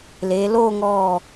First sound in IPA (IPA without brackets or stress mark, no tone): l